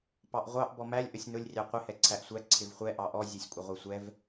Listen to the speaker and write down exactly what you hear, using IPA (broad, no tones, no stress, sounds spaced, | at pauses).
p ɑ ʔ ʁʷ ɑ ʔ b ɔ m æ lʲ ʔ ə sʲ n ʊ lʲ rʲ ɑ qʷ ɪ h ɛ ǀʰ æ ʔ sʷ æ ǀʰ ɪ v χʷ ɛ ʔ ɑ ʔ ɔ zʲ ɔ sʲ kʷʼ ʌ ʁʷ ə˞ sʷ ɛ v